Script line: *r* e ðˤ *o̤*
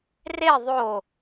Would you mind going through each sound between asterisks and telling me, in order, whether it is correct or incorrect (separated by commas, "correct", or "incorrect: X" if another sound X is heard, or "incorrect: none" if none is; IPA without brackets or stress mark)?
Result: correct, incorrect: o